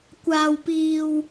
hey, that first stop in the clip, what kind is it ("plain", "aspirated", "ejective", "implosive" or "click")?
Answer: plain